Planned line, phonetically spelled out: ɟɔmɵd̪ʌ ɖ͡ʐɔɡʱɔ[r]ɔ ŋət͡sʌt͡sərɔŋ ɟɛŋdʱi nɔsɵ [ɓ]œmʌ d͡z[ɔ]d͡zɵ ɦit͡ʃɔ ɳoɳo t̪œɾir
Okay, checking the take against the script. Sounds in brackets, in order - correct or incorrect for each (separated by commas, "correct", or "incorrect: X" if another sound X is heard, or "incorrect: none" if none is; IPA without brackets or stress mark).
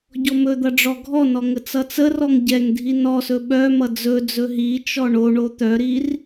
incorrect: n, correct, incorrect: ɵ